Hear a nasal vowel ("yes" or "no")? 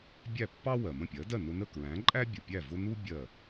yes